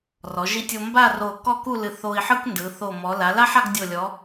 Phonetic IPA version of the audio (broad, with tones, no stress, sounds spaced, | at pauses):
r ɔ˩˧ ʒ i˧ tʲ o˧ m b a˥˧ r o˧˩ k ɔ˥˧ k u˥˧ l ɨ˧˩ θ o˧ i̯ ħ ɯ˥ k n d ɯ˩˧ θ o˧˩ m ɔ˩˧ l a˩˧ l a˥ ħ a˥˧ ɡ dʲ o˧˩ lʲ ɔ˩˧